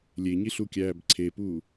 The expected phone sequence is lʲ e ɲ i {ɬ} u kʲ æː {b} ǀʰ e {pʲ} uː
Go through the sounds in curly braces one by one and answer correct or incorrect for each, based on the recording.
correct, correct, incorrect: p

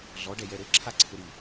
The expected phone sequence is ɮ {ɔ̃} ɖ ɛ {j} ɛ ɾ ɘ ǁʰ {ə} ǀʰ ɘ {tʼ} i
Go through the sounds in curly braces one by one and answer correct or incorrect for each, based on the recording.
incorrect: ɔ, correct, incorrect: a, incorrect: ɾ

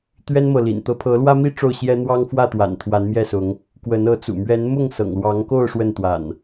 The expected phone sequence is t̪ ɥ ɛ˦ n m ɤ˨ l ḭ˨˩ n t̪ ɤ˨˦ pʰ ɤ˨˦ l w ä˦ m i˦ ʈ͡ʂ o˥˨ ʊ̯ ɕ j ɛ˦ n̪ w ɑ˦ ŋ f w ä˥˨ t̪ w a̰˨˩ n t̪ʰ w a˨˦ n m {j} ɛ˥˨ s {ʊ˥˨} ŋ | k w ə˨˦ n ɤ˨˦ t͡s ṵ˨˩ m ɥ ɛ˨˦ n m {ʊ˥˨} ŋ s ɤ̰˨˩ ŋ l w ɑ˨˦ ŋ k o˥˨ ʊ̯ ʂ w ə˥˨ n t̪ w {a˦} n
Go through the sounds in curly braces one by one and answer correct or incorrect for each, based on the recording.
correct, incorrect: ʊ˨˦, correct, incorrect: a̰˨˩

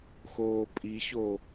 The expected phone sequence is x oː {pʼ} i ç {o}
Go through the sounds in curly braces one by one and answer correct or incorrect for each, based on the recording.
correct, correct

